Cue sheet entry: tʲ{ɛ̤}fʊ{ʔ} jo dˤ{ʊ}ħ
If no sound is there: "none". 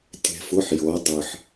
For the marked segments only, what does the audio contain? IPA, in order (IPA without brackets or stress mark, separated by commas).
ɛ̤, ħ, ɯ